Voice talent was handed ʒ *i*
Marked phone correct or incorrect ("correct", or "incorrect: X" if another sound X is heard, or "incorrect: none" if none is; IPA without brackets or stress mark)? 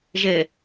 incorrect: e